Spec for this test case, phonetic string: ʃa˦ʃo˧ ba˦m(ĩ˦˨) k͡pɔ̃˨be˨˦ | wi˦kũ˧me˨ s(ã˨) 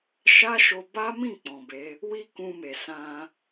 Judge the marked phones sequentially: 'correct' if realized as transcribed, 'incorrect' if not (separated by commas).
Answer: correct, incorrect